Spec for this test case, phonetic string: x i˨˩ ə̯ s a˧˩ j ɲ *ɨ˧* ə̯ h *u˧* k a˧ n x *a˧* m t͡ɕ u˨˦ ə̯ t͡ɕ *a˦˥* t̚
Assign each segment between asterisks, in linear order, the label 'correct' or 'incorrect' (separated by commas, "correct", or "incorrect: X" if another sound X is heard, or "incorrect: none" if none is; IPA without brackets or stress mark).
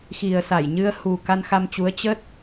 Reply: correct, incorrect: u˨˩, correct, incorrect: ə˦˥